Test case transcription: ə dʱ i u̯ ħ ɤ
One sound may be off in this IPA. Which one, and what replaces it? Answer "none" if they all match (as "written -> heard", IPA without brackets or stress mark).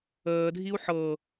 ə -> əː